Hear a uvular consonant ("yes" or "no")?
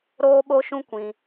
no